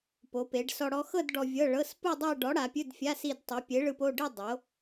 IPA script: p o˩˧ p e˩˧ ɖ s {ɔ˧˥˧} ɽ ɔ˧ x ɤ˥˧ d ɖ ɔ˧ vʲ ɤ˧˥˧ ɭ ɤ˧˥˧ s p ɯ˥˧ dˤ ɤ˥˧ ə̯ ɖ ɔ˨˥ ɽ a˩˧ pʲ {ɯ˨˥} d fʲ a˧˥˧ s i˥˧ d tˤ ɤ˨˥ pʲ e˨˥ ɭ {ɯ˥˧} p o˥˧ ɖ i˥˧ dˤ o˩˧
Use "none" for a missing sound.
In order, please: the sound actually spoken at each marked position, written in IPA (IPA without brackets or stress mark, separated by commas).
ɔ˧, ɯ˧˥˧, ɯ˧